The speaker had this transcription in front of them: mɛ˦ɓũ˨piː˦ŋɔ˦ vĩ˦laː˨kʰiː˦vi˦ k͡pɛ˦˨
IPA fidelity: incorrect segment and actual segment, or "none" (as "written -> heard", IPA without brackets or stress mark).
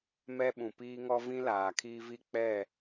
none